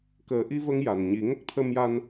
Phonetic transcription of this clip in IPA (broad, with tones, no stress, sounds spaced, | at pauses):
k əː˨˩˦ ʔ i˧ v ə˧ ŋ j a˨˩ n ɲ i˨˩˦ ŋ ə˦˥ k̚ t̪ʰ ə˧ m j a˧ n